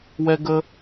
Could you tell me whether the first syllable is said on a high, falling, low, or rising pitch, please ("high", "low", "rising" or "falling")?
high